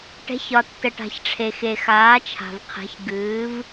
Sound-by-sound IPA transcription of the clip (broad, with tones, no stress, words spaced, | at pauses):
ʈɛ̤˩˧çɒ˩ tːə˩ʈa̤˩çʈ͡ʂʰe˩xe˩ xaː˩˧t͡ʃʰa̤˩vqʰɛ̤˩˧ç ɡɨː˩˧v